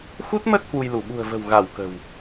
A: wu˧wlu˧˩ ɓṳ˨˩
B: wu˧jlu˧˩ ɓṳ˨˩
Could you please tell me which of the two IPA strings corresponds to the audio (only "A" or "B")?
B